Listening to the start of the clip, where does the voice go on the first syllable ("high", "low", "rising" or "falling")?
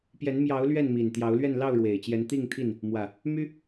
rising